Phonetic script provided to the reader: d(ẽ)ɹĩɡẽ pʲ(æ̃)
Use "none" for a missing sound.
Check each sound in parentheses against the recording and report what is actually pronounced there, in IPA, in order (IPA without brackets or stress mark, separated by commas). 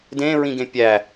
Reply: ẽ, æ